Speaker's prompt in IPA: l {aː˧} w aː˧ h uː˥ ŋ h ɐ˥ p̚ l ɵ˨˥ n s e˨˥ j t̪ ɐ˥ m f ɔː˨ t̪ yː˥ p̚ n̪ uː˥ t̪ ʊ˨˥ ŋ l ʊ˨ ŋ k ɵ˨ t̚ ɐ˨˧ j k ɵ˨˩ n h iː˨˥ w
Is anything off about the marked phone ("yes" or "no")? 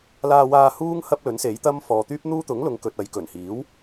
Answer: no